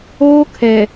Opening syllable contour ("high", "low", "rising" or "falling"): high